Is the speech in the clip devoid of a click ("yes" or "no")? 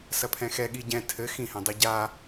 yes